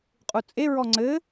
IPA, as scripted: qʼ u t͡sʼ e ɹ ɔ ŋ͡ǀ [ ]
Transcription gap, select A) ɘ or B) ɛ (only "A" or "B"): A